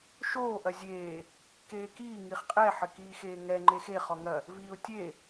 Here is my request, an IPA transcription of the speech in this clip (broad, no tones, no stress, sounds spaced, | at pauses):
ʃ oː ʔ ɐ zʲ eː | k eː k iː ŋ i χ qʼ ɛ ħ ɘ k iː x eː ŋ ɛ ŋ͡ǃ e x e χ ɔ ŋ ɐ | v iː ʊ̯ tʲ e